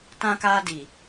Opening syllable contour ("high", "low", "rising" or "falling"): high